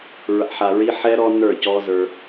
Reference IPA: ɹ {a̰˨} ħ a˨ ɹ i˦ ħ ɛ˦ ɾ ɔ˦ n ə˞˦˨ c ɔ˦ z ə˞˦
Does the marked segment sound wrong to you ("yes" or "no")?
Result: no